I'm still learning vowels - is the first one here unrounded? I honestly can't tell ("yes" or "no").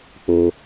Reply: no